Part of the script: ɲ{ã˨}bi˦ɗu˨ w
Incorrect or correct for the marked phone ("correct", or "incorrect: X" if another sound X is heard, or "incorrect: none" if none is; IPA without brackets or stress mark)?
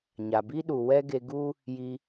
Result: incorrect: a˨